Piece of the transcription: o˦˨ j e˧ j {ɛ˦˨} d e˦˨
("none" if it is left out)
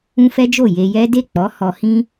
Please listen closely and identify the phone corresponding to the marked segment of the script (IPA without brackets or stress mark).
ɛ˦